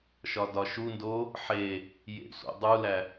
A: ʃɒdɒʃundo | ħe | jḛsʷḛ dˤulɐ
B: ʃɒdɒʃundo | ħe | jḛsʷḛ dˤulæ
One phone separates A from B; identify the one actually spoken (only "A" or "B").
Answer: B